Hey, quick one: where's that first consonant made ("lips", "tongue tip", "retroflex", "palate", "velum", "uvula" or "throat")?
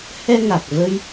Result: throat